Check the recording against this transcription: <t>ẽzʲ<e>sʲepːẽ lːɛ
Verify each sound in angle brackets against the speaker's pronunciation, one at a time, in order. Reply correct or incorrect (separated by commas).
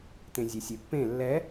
correct, correct